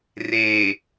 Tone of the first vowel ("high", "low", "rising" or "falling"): low